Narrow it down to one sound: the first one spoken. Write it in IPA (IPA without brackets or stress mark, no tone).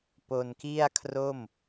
p